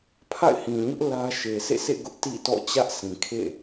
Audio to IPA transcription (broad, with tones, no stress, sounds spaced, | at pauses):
pʰ a̰˦˨ ɪ̯ h ĩ˨ ɲ ʊ˦ ʔ l ä˦ ʃ e˨ sʰ ḛ˦˨ s ḛ˦˨ ɡ ʊ˦ ʔ t ḭ˦˨ t ɔ̰˦˨ t͡ɕ ä˦ ʔ s ĩ˨ kʰ ḛ˦˨